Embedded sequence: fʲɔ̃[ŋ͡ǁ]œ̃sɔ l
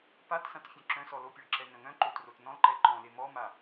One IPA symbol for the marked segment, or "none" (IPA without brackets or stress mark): ǁ